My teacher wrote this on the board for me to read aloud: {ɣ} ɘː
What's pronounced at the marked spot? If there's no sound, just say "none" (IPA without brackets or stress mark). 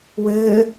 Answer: w